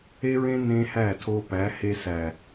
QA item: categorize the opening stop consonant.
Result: aspirated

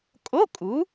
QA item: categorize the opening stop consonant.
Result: ejective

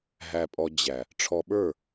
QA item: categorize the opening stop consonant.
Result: ejective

